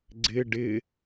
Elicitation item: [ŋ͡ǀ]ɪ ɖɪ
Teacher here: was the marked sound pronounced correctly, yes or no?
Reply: no